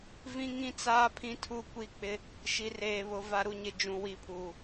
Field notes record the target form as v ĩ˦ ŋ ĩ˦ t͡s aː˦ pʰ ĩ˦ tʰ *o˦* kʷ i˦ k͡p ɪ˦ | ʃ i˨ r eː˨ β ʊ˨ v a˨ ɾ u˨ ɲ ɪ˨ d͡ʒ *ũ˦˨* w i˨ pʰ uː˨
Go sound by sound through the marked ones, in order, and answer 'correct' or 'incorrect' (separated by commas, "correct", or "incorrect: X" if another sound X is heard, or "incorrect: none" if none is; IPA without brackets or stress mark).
incorrect: u˦, incorrect: ũ˨